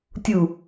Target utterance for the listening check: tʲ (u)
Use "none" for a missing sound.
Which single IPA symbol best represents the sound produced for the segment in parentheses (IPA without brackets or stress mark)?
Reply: u